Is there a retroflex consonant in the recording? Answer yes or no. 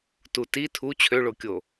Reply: yes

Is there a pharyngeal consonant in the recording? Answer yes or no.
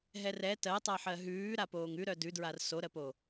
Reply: yes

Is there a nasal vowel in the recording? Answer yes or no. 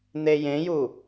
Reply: yes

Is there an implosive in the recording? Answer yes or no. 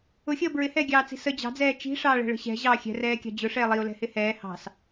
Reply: no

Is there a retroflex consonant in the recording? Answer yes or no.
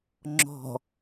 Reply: no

